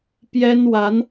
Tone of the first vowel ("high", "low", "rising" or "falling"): high